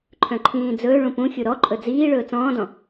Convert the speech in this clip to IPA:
ǃʰ œ̃ ǃʰ ĩː d͡z ɵː ɭ ũ p ũ xʲ u ɾ ɔ ǃʼ ɵ d͡z iː ɭ ɵː t͡s ɔ̃ː d ɔ̃

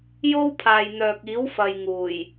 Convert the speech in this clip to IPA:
j o˥ w pʰ aː˨ j n̪ œː˨ k̚ iː˨˥ w f ɐ˨ j ŋ uː˨˩ j

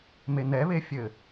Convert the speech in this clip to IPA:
m e n̪ ɛ β e fʲ ɘ

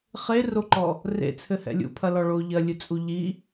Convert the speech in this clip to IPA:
χ e r o ǃ ɔ | r ḛ t͡sʰ ɘ h ɛ̰ lʲ ṵ pʰ ɐ l ɔ ɭ o ʎ ɐ lʲ ɨ t͡sʼ u ʎ i

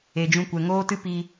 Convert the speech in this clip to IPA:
e˨ d͡ʒ ũ˧ kʷ ɛ˨ ŋ oː˦ t ɨ˦ p i˧

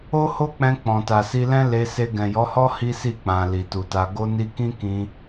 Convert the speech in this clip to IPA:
o˦ h o˦ k͡p ɛ̃˧ k͡p ɔ̃˨ t a˨ s i˧ l ɛ̃˦ l e˧ s e˧ ɡ ɛ̃˨ j ɔ˨˦ h ɔ˦ h i˦ s i˦˨ k͡p ã˨ l i˨ t u˨ t a˧ ɡ o˧ n i˧ k ĩ˦ k ĩ˧

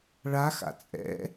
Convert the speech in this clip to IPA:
ɭ a x a̰ t͡sʼ ɛ̰

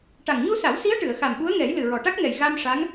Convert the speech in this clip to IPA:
ʈ a˨˩ ŋ ɲ u˧ s a˨˩˦ w s i˧˥ ə̯ ʈ ɨ˨˩˨ ə̯ x a˨˩ m ɓ u˧˥ ə̯ ŋ ɛ˨˩˦ j l ɨ˨˩ ɹ ɔ˨˩ ʈ a˦˥ k̚ ŋ ɛ˨˩ j ɣ a˧ m ʂ a˧˥ ŋ

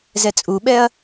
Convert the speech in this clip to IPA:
z ɛ t͡sʼ u ɓ ɛ ɐ̯

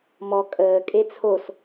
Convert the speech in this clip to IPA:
m ɔ kʼ əː kʼ e t͡sʰ o s

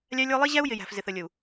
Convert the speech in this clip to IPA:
lʲ æ˦ lʲ ə˞˦ lˠ i˦ ʑ æ˦ u̯ j ɪ˨ j æ̤˨ f z ɪ˨ θ ə˨ lʲ ə˨ u̯

